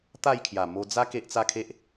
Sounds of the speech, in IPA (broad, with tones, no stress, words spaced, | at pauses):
t̪a˥˧jkʰja˨˩ mo˧d͡za˦ ke˦ʔt͡sa˦kʰe˦ʔ